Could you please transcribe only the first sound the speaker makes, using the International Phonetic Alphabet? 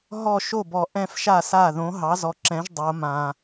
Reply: ɦ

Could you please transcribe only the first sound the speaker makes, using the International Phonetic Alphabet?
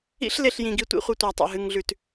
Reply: ḭ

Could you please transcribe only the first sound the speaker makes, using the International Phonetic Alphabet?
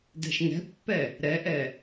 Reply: d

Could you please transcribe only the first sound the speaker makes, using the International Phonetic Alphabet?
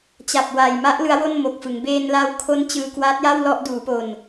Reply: t͡ɕ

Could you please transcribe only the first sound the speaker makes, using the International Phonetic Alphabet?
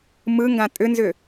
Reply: m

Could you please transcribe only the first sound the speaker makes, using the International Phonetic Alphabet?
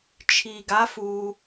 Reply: t͡ʃʰ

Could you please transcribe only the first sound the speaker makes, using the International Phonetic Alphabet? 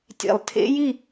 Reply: tʲ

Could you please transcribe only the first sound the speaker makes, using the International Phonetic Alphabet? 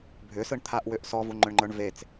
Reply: bʱ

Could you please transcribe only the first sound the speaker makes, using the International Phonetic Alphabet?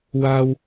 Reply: w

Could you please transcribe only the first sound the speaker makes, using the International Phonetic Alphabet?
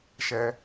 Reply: ʃ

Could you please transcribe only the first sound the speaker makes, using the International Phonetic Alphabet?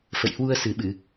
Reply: f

